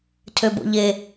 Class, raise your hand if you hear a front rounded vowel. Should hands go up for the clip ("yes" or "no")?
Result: yes